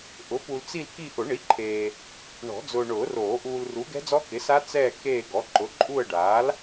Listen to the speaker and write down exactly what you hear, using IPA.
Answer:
ʔ ʊ˩˥ p u˨ l t͡s i˦˨ l k i˦˨ ʔ ʊ˨˩˦ ɳ i˩˥ ǃʰ eː˨ | ɳ ɔ̤˨˩˦ d͡z ʊː˨ ɳ ʊː˨˩˦ r oː˨˩˦ ʔ uː˨ l r u˩˥ ɡ ɛ̤˦˥ d͡z ɔ˦˥ k ɪ˩˥ s a˦˥ t͡s ɛː˦˨ k eː˦˨ ɡ ɔ˩˥ ǃ ʊ˩˥ ǃʼ u˦˨ ə̯ ɖ aː˩˥ l

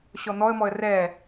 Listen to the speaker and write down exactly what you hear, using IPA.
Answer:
ɕ ɔ n̪ ɔ ə̯ m ɔ ə̯ r ɛ

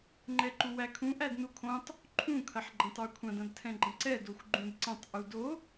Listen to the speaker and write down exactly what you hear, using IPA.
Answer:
ŋ͡ǃ ɛ ǃ u w æ kʰ ũ ʔ æ d n u kʰ õ tˤ | ǃʰ ũ kʰ ɐ ħ ɡ͡ǃ ɐ̃ tˤ ə˞ kʷʰ ɐ̃ d ɐ̃ d tʰ ɛ̃ ɡ͡ǃ ɐ̃ ǀ ɛ d o xʷ ɡ͡ǃ ũ d ǀ ɐ̃ tˤ ʔ u d o

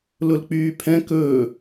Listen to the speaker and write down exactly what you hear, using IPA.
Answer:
l ʊ l k͡p yː pʰ ɛ̃ k ɵː

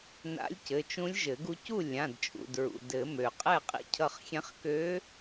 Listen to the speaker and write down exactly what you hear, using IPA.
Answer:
n a̰˧˥ lʲ c ɘ˩˧˩ t͡ʃ ũ˧˥ lʲ ʒ ɘ˨˩˦ ɡ u˧ c u˥˨ lʲ ã˩˧˩ d t͡ʃʼ ṵ˩˧˩ d ɹ ṵ˩ d ɘ˨˩˦ m ø˩ qʼ ɛ˥˨ qʼ ḭ˧ cʰ ʌ˧ χ xʲ ɛ̃˧˥ χ k ø˧˥

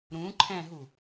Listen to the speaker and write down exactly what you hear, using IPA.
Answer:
ɾ ũ ǃʰ ɛ̃ ɦ u

